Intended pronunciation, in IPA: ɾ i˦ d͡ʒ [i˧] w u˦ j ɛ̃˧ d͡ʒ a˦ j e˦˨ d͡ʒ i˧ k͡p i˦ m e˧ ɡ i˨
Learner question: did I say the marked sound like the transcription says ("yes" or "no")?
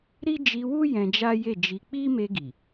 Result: yes